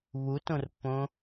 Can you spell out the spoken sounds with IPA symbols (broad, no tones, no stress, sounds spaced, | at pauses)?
β u t õ r pː õ